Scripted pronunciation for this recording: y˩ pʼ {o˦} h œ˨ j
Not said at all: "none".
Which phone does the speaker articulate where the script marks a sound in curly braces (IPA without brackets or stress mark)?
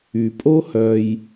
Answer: o˦